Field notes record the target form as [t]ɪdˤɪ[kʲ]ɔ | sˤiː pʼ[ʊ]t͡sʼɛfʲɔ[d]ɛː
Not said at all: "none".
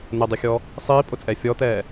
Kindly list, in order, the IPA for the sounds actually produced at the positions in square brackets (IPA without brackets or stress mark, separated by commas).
n̪, xʲ, ʊ, t̪